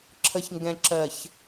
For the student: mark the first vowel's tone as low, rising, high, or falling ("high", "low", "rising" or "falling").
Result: low